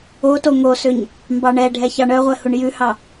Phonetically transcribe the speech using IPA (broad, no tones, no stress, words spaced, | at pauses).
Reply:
oto ŋosøɲ | mbɑɳɛɖʱɛç ɑɳœʁʷɛ huɳjʉhɑ